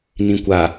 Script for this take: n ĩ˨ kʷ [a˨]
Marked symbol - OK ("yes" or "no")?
yes